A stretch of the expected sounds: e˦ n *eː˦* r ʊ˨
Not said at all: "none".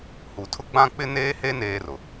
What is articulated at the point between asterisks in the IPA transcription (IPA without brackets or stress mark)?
eː˦